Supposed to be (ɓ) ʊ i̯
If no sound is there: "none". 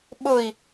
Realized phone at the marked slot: ɓ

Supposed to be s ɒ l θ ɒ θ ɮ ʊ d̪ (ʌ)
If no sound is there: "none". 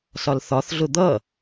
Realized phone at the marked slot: ʌ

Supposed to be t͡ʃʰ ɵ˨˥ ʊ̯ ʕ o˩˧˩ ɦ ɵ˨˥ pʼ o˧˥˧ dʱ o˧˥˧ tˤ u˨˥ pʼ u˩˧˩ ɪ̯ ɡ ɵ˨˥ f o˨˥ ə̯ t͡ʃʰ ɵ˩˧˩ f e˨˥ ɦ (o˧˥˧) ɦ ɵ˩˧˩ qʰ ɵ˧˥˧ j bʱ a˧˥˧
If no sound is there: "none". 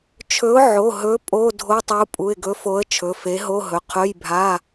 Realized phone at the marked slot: o˧˥˧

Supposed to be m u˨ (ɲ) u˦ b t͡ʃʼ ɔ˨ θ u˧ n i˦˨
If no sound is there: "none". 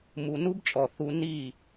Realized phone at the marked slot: n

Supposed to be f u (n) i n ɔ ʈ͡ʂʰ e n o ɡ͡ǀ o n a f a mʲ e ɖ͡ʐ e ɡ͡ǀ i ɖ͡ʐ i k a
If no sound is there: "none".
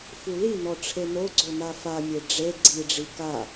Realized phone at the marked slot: l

